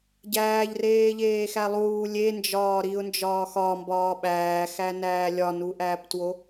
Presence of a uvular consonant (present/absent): absent